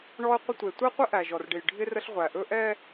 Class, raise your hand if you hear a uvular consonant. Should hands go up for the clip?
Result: yes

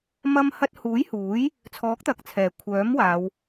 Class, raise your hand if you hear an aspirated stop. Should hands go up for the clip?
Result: yes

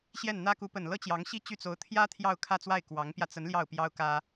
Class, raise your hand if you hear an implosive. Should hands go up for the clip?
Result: no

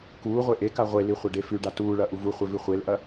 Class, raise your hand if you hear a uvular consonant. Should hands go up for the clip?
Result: yes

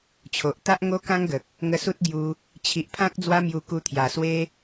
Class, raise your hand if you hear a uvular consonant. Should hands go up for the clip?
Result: no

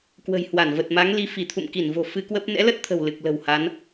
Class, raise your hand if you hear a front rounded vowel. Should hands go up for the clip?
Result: no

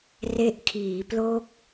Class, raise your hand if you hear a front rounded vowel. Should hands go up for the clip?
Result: no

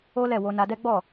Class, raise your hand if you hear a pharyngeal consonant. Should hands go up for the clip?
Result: no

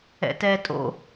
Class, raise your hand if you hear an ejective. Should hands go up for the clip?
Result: yes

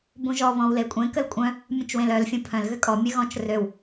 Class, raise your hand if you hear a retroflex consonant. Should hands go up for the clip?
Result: no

